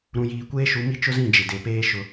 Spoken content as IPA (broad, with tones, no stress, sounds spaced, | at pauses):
ɾ ũ˨ j iː˨ kʷ eː˦ ʃ u˨˦ m i˦ t͡ʃ ʊ˦ z ĩ˦˨ d͡ʒ ɪ˨ d e˨ p eː˦ ʃ ʊ˦